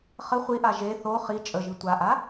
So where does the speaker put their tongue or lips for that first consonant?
uvula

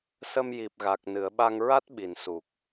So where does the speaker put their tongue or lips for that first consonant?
tongue tip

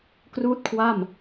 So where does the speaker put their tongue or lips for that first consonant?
velum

